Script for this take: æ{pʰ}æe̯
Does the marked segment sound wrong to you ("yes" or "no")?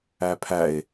no